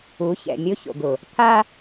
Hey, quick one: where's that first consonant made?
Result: palate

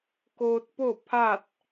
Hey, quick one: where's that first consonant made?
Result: velum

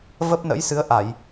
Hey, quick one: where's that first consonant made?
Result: lips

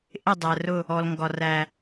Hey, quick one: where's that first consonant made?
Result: throat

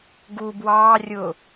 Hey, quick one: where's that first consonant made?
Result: velum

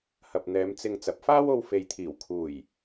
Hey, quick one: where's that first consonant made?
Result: throat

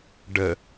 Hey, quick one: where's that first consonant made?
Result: retroflex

